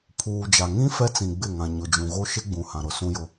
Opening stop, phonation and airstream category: aspirated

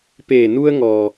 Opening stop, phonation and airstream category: plain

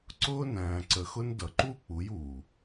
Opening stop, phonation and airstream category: click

